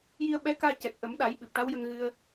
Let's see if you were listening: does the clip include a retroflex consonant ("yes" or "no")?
yes